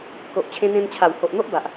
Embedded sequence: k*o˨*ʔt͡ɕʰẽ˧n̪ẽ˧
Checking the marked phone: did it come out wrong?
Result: no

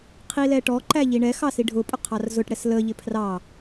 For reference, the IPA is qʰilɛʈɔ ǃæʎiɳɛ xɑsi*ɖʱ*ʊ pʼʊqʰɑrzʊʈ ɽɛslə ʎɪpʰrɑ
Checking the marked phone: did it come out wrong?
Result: no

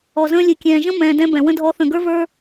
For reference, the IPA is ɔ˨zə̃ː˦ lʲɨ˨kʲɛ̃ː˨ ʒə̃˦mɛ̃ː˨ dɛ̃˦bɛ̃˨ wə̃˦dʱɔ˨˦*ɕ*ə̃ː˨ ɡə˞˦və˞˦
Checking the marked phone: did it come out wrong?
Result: yes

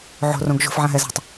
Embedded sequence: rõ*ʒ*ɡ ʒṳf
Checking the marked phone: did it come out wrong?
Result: yes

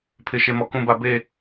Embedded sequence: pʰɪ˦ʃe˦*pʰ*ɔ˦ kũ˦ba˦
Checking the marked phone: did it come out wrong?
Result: yes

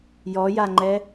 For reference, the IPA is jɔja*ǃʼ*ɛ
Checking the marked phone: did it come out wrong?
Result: yes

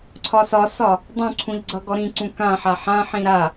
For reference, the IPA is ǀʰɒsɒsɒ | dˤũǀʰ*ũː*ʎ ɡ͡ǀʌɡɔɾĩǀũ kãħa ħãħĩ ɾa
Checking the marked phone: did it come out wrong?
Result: yes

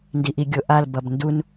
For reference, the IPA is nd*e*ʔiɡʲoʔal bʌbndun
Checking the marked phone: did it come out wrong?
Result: yes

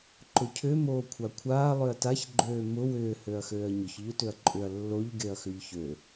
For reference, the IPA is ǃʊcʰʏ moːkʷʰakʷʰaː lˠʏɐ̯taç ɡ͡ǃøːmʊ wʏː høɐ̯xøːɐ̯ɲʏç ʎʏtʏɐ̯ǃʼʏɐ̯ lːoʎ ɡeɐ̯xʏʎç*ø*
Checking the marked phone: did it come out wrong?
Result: no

